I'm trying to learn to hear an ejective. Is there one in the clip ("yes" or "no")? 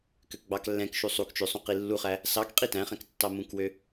yes